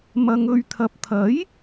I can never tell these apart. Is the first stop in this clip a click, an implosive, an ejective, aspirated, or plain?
aspirated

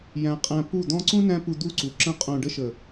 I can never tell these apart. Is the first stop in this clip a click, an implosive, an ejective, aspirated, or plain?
ejective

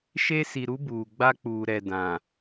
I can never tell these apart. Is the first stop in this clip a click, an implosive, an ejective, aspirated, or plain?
plain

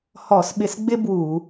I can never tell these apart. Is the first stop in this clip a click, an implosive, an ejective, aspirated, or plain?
implosive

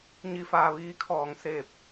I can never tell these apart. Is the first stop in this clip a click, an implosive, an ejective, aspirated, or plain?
aspirated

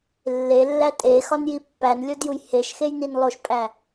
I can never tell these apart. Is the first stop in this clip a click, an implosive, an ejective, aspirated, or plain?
ejective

